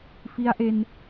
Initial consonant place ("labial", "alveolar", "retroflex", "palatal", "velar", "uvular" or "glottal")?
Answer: labial